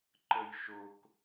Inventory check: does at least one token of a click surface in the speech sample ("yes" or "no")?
yes